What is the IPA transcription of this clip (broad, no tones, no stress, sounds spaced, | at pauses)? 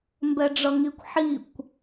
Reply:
m b ɛ ɖ͡ʐ ʌ ŋ i kʷ ħ i kʷ